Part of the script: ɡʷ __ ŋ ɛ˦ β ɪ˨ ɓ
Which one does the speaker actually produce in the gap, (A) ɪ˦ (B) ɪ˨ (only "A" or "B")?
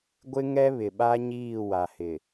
A